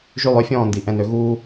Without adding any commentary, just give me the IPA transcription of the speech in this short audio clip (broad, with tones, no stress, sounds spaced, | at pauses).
ʒ y˦˨ lˠ ø˦ fʲ ɔ̃ː˦˨ n d i˨ ʔ ɛ̃˨ n ø˧ ɣ uː˧